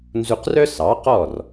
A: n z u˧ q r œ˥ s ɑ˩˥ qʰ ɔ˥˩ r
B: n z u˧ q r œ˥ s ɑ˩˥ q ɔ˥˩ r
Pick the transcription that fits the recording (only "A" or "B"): B